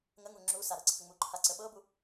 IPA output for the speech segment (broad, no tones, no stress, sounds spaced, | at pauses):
ŋ ə ŋ u ŋ͡ǁ u s a ɾ ɤ ǀʰ ə ŋ͡m u ǃʰ a ǀ ə ɓ ɤ b u